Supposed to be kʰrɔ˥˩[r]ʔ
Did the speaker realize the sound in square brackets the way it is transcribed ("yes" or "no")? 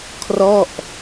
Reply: no